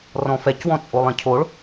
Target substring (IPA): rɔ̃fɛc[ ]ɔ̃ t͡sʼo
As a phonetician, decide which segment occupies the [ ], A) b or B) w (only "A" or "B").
B